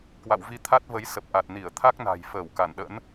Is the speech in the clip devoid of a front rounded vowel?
yes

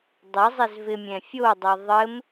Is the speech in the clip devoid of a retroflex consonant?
yes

